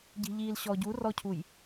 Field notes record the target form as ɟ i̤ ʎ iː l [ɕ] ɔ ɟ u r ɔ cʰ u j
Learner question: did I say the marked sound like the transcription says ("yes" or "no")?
yes